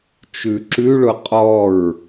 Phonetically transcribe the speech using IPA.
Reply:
t͡ʃ ʉ ǁ ʉ ɭ ʊ qʼ ɔ ɹ

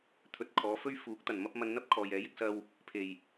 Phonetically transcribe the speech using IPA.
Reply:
t̪ʰ ɵ˨ t̚ kʰ ɔː˨˧ f ɵ˥ ɥ f uː˨˥ k̚ t̪ ɐ˨˩ n m ɐ˥ p̚ m ɐ˧ n n̪ ɐ˥ p̚ kʰ ɔː˨ j ɛː˨˥ j ɪ˥ k̚ s ɐ˥ w | pʰ e˨˩ j

